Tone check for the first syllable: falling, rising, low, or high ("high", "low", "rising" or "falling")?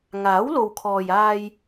rising